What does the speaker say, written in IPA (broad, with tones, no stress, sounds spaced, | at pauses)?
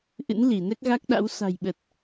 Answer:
ʔ ɨ̰˧˥ n l i˧˩ n ɛ˦˥ k̚ ɣ a˦˥ k̚ ɗ a̰˧˥ w s a̤˨˩ j ɓ ə˨˩ t̚